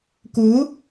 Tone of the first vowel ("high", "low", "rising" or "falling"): rising